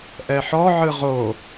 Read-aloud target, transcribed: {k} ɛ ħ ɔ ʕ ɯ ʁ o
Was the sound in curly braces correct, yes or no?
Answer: no